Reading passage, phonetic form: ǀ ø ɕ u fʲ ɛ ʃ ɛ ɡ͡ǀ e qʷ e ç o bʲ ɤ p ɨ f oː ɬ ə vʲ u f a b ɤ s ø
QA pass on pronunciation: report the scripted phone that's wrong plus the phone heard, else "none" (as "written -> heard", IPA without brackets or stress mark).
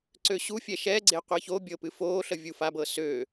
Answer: none